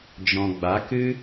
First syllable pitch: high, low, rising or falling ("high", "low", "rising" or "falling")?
low